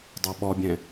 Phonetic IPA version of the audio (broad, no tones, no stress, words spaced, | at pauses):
dˤoɓɔbʲɛ̃